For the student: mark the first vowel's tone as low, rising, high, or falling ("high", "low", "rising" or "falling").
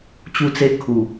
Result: falling